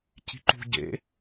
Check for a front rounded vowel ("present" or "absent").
absent